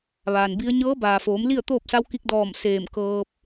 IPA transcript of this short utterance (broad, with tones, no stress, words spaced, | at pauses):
ʋaː˩nbi˧˥ə̯ ɲɤː˧˥baː˩foː˩˧m li˥˨ə̯t̪oː˥˨p̚sa˧˥wki˧k̚ dɔː˧˩m seː˧˩m kɤː˧p̚